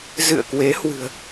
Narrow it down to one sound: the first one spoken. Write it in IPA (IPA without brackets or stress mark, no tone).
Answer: z